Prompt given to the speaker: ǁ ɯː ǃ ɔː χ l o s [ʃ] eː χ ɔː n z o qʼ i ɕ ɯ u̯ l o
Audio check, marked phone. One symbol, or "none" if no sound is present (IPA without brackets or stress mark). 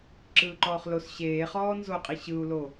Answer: ɕ